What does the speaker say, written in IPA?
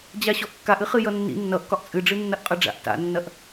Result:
d͡ʑaɕɔʔkːaʔ ɨχɨjʌnːḭ nːʌʔkɒʔ t͡sʼɨɖ͡ʐɨ nːɐʔqʼʌɖ͡ʐa̰ʔ ta̰nːɐʔ

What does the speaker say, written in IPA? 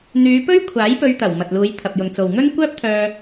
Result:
n̪yː˨˧pɵ˥ɥkʷʰaː˨˥j pɵ˧ɥt̪ɐ˨˩w mɐ˨t̚luː˨˧jt̪ʰɐ˨p̚ jʊ˨ŋt͡so˨wŋɵ˥n kʷœː˥p̚t̪ʰœː˧

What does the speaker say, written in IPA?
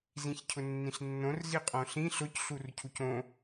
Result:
zĩçcʰʊnːĩɬnːõr ziqʼõɬĩ ɬʊc ɬurcʰucõ

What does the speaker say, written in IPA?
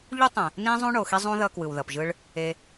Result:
ʎu˦tˤɛ̃˨ | nĩ˦zˤũ˦ ɳo˨xi˦zˤũ˦ðʌ˧ kwɯ˨wðʌ˨pʒɯ˧ɭ | e˧

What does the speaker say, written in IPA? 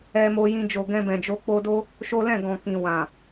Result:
ɛ˧mo˧jĩ˧ d͡ʒo˨ɡɛ̃˧bɛ̃˨d͡ʒo˧ k͡po˧do˦ | ʃo˦lɛ̃˦˨ɡɔ̃˨kĩ˨ wã˨

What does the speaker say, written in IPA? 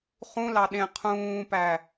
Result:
χũlɑ ɗẽ qʰũːpæ

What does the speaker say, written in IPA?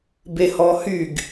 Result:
behɔhyɡ

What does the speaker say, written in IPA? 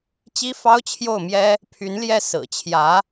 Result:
t͡ɕi˥fɑ˥ʊ̯t͡ɕʰjo˥˩ʊ̯mjɛ˥ | pʰy˧˥nljɛ˥˩ sɹ̩˨˩t͡ɕʰjä˧˥

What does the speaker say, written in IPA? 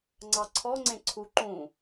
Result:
ŋ͡ǀɑǀʰɔŋ͡ǀẽ ǀʰu ǃũ

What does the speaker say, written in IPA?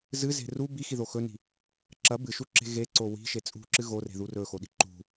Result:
zɨze̤ ru bixiðo xɵni̤ | ǁɐ bɨʃuǁe̤ ɣeǀo wi̤ʃe t͡sʼṳǁɨ ɣore̤ðu rɵxoɗi̤ ǃṳ

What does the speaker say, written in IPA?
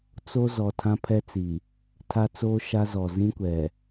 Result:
t͡so˦ zɔ˨tʰã˦pʰɛ˦t͡si˨ | tʰa˦ t͡soː˦ʃa˦zɔ˨ zĩ˦kʷɛ˨

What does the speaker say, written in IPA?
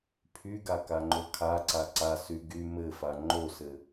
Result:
pʰyɡa kaŋ͡ǃokʰaǀa ǀasy ɡy mɘfa ŋ͡ǃosɘ

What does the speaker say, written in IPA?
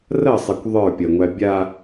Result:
rɐsˤɛkʷ ðˤə˞pʲɐŋʷæ bʲa

